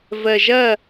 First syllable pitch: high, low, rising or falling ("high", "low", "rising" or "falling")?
low